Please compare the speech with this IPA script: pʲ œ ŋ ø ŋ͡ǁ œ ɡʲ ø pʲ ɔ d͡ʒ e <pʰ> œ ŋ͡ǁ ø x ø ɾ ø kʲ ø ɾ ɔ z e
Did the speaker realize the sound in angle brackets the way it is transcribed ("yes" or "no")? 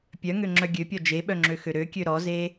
no